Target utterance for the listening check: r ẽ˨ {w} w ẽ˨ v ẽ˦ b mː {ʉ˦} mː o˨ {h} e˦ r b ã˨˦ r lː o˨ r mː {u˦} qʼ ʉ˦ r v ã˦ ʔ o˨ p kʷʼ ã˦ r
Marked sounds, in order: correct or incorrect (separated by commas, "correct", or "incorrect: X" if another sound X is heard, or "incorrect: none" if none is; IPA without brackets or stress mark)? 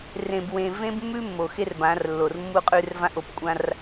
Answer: incorrect: b, correct, incorrect: x, correct